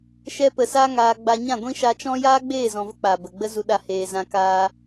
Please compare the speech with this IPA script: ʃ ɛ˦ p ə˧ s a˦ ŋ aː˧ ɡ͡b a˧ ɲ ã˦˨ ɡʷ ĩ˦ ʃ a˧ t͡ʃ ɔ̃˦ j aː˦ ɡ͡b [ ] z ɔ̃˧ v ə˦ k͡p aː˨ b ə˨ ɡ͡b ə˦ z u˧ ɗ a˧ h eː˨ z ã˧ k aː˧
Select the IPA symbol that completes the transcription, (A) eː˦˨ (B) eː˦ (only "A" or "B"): A